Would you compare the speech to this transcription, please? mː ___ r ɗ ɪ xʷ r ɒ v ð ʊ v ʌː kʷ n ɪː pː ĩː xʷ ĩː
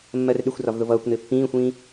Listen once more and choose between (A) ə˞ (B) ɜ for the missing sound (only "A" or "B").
B